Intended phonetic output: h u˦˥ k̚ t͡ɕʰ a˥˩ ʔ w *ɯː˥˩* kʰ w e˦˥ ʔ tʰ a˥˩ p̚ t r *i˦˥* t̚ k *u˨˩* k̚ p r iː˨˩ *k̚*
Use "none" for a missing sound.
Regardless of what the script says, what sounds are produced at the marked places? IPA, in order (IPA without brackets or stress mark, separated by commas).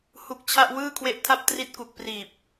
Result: ɯː˥˩, i˦˥, u˨˩, p̚